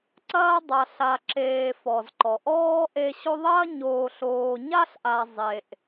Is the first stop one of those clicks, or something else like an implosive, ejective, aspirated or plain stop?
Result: click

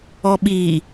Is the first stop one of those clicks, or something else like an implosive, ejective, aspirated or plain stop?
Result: implosive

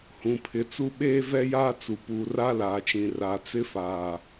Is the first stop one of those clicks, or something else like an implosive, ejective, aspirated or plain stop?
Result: aspirated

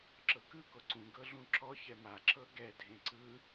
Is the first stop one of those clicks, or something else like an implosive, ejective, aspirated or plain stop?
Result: click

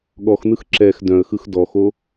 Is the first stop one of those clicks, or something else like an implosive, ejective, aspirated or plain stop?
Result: implosive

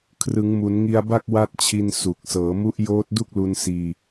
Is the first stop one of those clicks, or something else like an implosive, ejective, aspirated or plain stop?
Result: aspirated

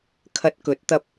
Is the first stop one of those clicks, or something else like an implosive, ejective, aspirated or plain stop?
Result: aspirated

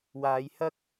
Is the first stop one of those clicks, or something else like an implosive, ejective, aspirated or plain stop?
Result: plain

